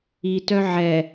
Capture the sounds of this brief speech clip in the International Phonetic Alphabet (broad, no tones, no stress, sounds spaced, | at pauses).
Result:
i t œ ʕ ɛ